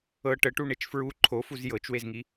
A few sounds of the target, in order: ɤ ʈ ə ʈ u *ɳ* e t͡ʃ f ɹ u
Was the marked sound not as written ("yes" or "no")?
no